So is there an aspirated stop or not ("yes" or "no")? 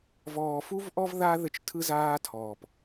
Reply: yes